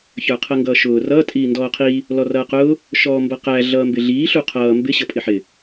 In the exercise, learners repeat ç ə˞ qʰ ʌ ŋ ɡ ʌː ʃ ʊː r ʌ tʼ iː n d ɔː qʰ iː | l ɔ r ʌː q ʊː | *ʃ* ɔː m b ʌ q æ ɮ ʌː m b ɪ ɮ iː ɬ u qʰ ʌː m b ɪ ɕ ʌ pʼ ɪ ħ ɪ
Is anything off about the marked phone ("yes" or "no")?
no